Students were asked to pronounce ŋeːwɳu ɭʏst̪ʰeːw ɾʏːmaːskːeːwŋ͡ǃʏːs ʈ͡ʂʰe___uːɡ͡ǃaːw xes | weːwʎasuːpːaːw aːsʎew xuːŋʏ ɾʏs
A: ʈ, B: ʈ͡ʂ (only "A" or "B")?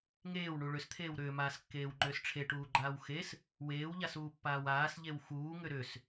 A